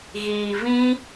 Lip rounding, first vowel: unrounded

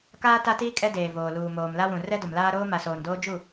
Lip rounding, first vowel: unrounded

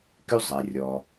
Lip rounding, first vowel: rounded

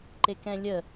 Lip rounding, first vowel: unrounded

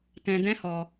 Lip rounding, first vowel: unrounded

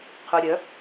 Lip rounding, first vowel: rounded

